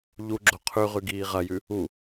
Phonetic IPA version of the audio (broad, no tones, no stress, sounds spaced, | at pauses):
ʎ u ɡ͡ǁ o qʰ ʉ ʁ ʉ ɡ iː ʁ ɐ j ʉ | u